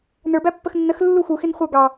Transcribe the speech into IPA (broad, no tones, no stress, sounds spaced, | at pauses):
n ə˞ b æ pː ə x nː ə x lː u x u x ɪ n χʷ ə˞ ɡ ɑ